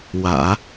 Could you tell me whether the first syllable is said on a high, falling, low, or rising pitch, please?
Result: low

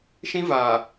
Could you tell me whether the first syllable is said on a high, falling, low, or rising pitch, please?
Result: high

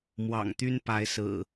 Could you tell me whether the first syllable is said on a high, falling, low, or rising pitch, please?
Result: low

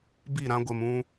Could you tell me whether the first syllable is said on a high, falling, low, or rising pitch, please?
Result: falling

